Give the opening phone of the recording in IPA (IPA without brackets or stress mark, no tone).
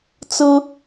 t͡s